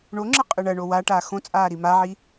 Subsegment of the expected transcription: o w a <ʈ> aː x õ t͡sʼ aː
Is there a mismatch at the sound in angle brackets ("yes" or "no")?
no